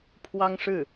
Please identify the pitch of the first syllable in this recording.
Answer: high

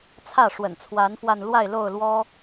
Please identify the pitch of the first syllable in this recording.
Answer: falling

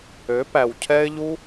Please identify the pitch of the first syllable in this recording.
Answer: rising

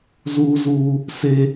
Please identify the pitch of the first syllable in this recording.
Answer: high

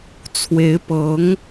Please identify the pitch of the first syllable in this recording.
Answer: rising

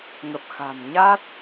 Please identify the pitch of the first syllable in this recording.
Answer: low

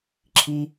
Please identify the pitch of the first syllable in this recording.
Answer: high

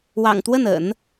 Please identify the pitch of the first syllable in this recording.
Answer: low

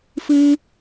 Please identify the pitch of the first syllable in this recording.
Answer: high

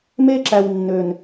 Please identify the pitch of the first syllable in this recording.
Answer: high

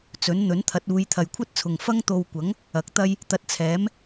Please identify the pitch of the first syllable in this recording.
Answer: rising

